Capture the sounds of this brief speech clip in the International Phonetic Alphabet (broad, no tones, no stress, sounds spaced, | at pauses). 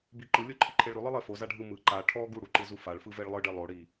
b i ǃ ɯ lʲ o ǃʰ i ǃʰ e ɭ ɾ ʉ lˠ ɯ lˠ e f o z a ɖʱ ɯ m ɯ ǃ a ʈʰ ɔ ɡ u ɽ u ǃ ɯ z u f a ɭ f ɯ v e ɭ lˠ ɯ ɖ e lˠ o ɽ i